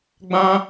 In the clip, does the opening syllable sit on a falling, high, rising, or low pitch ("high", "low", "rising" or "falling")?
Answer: high